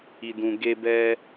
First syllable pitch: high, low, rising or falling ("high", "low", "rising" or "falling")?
low